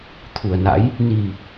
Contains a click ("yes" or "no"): no